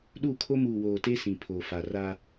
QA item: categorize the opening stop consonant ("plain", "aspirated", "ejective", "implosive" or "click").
implosive